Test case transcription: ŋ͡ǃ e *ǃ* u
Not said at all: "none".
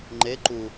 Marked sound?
ǃ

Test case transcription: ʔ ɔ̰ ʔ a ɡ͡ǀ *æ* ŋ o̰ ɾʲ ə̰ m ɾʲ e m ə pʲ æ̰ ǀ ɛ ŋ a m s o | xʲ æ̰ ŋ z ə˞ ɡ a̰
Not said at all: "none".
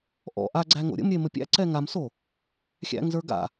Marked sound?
æ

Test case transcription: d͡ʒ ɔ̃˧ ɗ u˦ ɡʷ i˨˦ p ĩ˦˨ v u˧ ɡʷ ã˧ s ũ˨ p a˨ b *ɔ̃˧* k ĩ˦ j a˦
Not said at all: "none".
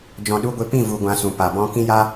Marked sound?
ɔ̃˦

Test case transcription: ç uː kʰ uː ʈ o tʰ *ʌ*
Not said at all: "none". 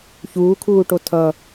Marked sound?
ʌ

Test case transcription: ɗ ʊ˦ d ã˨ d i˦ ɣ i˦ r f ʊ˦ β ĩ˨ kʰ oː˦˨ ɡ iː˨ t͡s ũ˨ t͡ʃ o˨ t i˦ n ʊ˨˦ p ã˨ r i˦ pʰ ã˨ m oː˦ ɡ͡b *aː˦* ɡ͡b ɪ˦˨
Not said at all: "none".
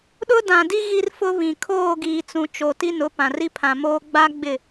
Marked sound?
a˦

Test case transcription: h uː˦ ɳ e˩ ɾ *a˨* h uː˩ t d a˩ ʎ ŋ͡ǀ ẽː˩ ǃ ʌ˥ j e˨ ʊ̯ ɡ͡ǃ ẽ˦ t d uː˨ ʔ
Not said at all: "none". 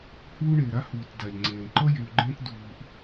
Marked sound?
a˥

